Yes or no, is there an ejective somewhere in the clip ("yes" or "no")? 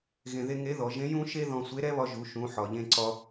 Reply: no